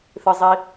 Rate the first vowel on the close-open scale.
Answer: close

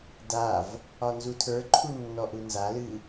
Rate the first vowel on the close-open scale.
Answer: open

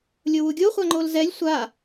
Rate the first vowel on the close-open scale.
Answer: mid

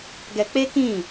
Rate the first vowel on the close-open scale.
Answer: mid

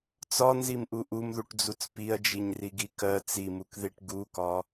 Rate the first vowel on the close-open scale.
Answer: open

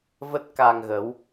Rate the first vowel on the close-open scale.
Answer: mid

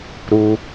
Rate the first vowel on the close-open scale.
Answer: close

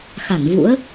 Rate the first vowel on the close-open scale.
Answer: open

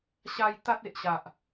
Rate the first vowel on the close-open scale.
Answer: open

